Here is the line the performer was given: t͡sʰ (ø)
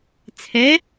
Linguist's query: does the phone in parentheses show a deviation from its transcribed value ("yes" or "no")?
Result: yes